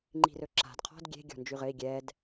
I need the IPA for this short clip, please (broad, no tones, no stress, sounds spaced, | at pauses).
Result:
ŋ͡ǃ i̤ r ɵ ǁ a̤ d qʰ ɔ̤ d ɡʲ e̤ ɡʲ ɔ̤ n d͡ʒ y ʁ ɘ i̯ ɡʲ ɛ d